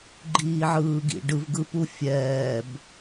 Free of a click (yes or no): no